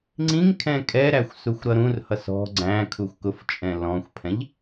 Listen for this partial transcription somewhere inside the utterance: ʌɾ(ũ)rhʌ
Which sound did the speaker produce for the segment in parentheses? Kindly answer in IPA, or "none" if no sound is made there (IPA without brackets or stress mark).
ũ